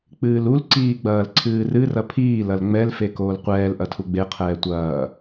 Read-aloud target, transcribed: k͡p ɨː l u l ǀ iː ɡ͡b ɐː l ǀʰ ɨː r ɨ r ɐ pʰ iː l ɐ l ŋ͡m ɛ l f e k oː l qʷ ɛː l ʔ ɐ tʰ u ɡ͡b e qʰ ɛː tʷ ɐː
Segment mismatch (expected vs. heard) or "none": none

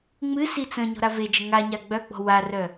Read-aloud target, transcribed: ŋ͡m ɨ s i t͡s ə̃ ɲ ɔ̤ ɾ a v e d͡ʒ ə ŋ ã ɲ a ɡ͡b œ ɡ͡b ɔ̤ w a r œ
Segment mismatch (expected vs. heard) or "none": ã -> a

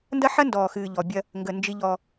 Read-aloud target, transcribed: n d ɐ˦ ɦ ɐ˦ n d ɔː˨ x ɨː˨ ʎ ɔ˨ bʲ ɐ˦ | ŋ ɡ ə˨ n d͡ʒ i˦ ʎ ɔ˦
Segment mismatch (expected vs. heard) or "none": ɦ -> ħ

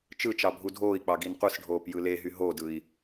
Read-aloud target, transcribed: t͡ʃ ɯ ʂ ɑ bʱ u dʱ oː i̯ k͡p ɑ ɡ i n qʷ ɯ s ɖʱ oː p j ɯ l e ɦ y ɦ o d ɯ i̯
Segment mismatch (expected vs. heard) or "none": ʂ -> t͡ʃ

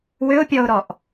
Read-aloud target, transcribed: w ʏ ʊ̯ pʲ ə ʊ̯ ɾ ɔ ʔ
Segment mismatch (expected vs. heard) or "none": ə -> ɔ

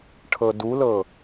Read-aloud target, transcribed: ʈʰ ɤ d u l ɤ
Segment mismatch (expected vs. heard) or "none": none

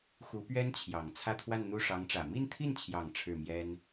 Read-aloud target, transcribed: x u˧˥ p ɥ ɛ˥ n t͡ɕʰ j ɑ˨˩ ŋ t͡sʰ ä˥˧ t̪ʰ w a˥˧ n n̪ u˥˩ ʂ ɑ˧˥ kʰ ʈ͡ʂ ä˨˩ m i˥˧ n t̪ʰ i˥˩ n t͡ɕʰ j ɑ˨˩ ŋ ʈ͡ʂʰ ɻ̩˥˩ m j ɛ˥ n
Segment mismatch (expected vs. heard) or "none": kʰ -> ŋ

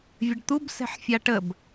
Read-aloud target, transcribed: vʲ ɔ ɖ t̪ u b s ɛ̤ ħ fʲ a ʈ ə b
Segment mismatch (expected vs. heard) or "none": ɔ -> ə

